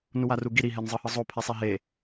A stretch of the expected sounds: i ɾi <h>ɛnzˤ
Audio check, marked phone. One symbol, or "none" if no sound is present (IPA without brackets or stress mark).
ɦ